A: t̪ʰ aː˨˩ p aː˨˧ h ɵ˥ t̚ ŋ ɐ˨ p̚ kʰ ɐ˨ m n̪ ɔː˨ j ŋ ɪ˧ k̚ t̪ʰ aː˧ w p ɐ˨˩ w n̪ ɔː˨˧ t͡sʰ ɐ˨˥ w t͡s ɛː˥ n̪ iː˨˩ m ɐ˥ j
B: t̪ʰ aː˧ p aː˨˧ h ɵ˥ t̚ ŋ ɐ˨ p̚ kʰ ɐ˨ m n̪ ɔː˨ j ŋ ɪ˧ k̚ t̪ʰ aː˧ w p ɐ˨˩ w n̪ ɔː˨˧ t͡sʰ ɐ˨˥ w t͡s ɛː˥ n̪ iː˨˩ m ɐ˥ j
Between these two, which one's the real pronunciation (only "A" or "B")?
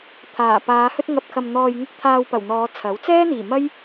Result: A